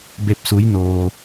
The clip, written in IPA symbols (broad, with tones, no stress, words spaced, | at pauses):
be˧p̚su˧˥jnoː˧